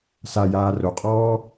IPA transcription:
s a j aː r o qʼ ɔː

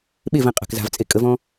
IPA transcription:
ɓ e v ɛ̃ qʼ a̤ k z a̤ v t͡sʼ e kʼ ə v ɔ̃

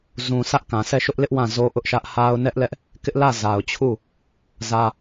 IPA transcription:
z ũ˨ sʰ ä˦ ʔ k ã˨ sʰ ɛ˦˨ ʃ ʊ˦ ʔ l ɪ˦ ʔ w ã˦˨ z o˦ ʔ ʊ˦ ʔ ʃ ä˦ ʔ h a˦ ʊ̯ n ɛ˦ ʔ l ɛ˦ ʔ | k ɪ˦ ʔ l ä˦˨ z a˨ ʊ̯ t͡ɕʰ u˦˨ | z ä˦

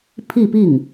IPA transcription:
pʰ i˥˧ p i˥˩ ŋ

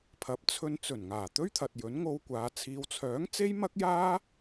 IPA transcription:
pʰ ɐ˨˥ p̚ t͡sʰ ɵ˧ n t͡s ɵ˨˩ n ŋ aː˨˩ t̪ ɵ˥ ɥ t̪ʰ ɐ˨ t̚ j ɵ˨˥ n ŋ o˧ w kʷ aː˨˧ t͡sʰ iː˨˧ w t͡sʰ œː˨˥ ŋ t͡s e˥ j m ɐ˥ k̚ j aː˥

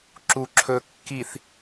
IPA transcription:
ǁ u˨ ǁʰ ɵ˨ kː i˨ θ

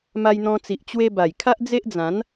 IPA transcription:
m a˧ j n̪ ɔ̃˧ t͡s i˨ ʔ t͡ɕ w e˧ b a˨˩ j kʰ a˦ ʔ d͡z e˦ ʔ d͡z ã˨˦ n

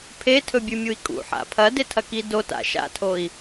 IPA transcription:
pʰ e tʰ ɵ bʲ ʉ mʲ u i̯ kʼ ṵ ħ a̰ pʰ ɐ d e tʰ ɐ k i d o t a̰ ʃ a̰ tʰ o i̯

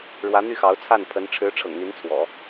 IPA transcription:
ɻ w ä˧˥ n̪ y˥˩ x ɑ˧˥ ʊ̯ t͡sʰ a˥˩ n pʰ ə˧˥ n ʈ͡ʂʰ ɻ̩˧˥ ʈ͡ʂʰ ɤ̰˨˩ ŋ n̪ i˧˥ n t͡sʰ w ɔ̰˨˩˦

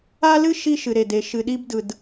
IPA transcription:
a˦ l ɨ˦ ʃ i˦ ʃ ɨ˨ ɾ e˨ d e˨ ʃ ɨ˨ ɗ i˦ b d ɯ˨ d

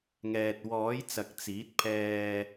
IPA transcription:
ŋ ɛː˨ t̚ w ɔː˨˥ j t͡s ɐ˨ k̚ t͡s iː˨˥ t̚ pʰ ɛː˧

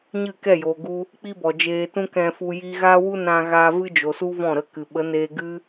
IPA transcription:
ɲ ɨ˦˨ k ɛ˦˨ j oː˨ ɡ u˦ | k͡p i˦ b ɔ˨ d͡ʒ eː˧ t ũ˦ k ɛ̃˧ f u˧ j i˧ ɣ aː˦ w u˦ n ã˦ ɣ aː˦ v ɨ˦ d͡ʒ o˨ s u˦ v ɔ̃˦˨ ɾ ə˧ k ɨ˨ ɓ ə˨˦ n eː˧ ɡ ɨ˦

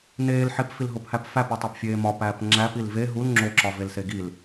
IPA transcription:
n eː l ħ e p f i l ɦ o p h æ p f æ p u tˤ e p fʲ eː m ɒ p æː p ŋ͡ǁ æ p i l v e ɦ u l ŋ͡ǁ o ǁ ɒ v e l s e ɡ i l

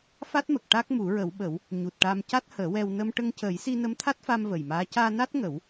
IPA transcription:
f a˦˥ t̚ m ə˨˩ k̚ ʈ a˦˥ k̚ m u˨˩˦ ɹ ə˨˩˦ w ɓ ə˨˩˦ w | ɲ u˨˩ t̚ ʈ a˧ m c a˦˥ t̚ h əː˨˩˦ w ɛ˧ w n ə˧ m ʈ ə˧ ŋ c əː˨˩˦ j s i˧ n ə˧˥ m t̪ʰ a˦˥ t̚ f a˧ m v ə˨˩ j m aː˧˥ c aː˧ n a˦˥ t̚ ŋ ə˨˩˦ w

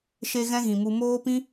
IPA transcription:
ʃ e˦ ɣ ɛ̃˦ ɣ ĩ˨ m u˧ m oː˦ p ĩ˦

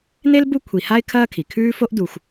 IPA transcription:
n e˥ l b u˦ kʷʰ i˨ h a˥ ɪ̯ kʰ ɐː˥ kʰ i˩ kʰ ʉː˥ f o˥ ʔ d u˨ xʷ

